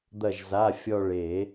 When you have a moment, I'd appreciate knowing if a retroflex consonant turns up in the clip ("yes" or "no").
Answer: yes